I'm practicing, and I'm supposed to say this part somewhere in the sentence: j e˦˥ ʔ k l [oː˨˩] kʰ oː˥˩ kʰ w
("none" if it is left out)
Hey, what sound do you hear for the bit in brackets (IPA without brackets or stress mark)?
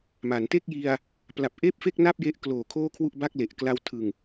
oː˨˩